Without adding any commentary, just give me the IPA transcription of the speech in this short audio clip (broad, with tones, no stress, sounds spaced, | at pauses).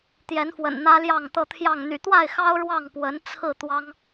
t̪ j ɛ˨˦ n f w ə̰˨˩ n n̪ ä˦ l j ɑ˥˨ ŋ t̪ ɤ˥˨ t̪ʰ j ɑ˥˨ ŋ n̪ y̰˨˩ t̪ w a˥˨ ɪ̯ x ɑ˦ ʊ̯ ɻ w ɑ˥˨ ŋ p w ə˨˦ n t͡sʰ ɹ̩˥˨ t̪ w ɑ˦ ŋ